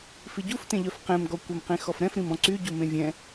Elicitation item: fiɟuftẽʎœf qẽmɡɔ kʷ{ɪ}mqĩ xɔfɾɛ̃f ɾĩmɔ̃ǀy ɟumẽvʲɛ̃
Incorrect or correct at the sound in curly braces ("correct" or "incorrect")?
incorrect